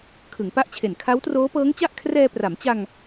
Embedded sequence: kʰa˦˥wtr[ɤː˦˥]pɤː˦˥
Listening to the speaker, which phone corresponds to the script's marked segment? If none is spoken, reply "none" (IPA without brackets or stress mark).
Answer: oː˦˥